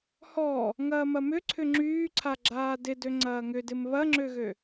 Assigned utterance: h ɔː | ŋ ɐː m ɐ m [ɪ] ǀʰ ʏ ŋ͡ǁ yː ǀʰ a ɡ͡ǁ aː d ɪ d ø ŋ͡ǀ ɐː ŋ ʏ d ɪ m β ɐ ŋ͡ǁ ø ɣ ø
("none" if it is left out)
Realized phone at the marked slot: ʏ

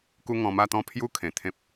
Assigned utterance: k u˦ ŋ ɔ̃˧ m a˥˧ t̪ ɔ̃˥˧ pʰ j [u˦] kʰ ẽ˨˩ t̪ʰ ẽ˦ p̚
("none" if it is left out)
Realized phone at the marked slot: u˦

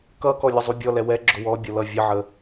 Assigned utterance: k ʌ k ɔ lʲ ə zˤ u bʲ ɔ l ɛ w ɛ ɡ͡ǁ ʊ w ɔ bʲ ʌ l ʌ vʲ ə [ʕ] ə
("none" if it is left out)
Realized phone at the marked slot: ʕ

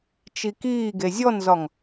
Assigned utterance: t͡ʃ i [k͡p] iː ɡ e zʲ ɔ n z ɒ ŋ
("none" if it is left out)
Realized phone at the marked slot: k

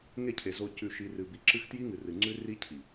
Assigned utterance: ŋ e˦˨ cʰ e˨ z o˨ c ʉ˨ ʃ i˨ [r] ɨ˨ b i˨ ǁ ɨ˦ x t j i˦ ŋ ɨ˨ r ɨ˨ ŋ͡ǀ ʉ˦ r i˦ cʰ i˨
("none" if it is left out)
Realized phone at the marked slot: r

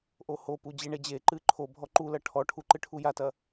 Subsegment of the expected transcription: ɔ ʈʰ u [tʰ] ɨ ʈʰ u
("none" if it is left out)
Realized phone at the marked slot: ǃ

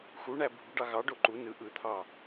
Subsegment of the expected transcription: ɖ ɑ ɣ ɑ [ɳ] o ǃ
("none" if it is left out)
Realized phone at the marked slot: ɖ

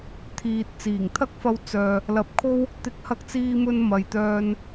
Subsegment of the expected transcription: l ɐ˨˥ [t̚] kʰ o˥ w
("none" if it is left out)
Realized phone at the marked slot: p̚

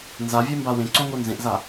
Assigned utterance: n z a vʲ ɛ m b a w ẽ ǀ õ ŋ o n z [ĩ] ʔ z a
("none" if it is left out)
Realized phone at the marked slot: ẽ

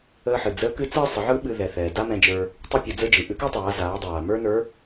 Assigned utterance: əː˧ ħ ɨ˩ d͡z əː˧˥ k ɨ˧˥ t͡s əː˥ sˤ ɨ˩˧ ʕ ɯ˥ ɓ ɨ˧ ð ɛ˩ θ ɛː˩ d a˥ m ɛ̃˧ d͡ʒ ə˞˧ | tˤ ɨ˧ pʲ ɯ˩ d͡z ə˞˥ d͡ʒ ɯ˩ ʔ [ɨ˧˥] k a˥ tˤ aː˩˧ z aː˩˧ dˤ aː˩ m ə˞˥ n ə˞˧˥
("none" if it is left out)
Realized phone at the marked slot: ɨ˧˥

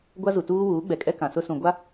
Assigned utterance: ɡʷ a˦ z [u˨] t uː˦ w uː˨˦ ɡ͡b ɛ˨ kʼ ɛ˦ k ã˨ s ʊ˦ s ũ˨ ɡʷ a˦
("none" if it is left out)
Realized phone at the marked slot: u˨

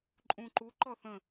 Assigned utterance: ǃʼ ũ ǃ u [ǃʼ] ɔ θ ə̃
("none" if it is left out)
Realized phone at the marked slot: ǃ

